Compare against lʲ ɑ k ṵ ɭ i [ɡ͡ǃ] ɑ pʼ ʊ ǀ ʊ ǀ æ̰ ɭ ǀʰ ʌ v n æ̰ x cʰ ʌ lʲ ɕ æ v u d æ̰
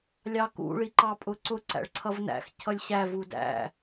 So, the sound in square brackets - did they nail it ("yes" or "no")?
no